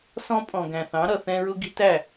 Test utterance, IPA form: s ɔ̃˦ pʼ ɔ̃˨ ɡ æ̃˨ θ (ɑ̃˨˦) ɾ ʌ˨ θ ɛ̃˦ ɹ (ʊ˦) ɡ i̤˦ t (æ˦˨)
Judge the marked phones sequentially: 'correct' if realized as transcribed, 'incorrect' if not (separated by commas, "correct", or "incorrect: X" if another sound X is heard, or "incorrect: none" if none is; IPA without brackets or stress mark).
correct, correct, correct